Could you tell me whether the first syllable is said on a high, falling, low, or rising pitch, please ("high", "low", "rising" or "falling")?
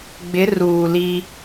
rising